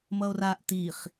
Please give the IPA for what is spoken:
m ʌ o̯ r a ʔ t i χ

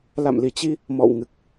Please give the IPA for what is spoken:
l a̰˧˨ m l i˧˩ t͡ɕ i˧ | m ɔ̰˧˨ w ŋ ɨ˨˩ k̚

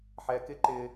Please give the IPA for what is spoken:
ħ ɛ˧ k ɪ˦ ǃ ɪ˧

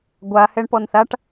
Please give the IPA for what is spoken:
ɡʷ a h ɛ ɳ p ɔ n θ a ʈ

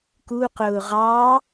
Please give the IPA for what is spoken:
k u q ʊː ʁ ɑ

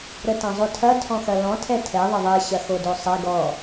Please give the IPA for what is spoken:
ɾ ə t ɐ̃ zˤ o tʰ ɐ tʰ ɔ̃ x ɐ l ɔ̃ tʰ ɛ tʰ ɛ ðˤ ə ðˤ ɛ ɕ ɐ x o d o sˤ ɛ ɡ ɔ

